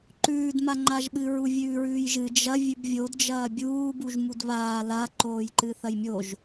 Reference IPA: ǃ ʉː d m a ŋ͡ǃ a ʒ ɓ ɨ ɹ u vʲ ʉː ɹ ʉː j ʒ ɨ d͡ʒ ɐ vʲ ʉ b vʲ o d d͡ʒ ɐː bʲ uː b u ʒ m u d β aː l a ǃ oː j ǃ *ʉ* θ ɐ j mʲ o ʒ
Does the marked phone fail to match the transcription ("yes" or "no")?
yes